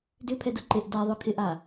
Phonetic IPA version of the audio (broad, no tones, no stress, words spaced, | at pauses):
dʏpʰɛdʊ ǃeʔda ðˤœkʰɪʔa